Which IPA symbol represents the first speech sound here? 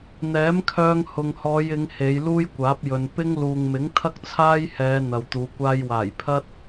n̪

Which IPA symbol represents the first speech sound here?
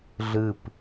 ɮ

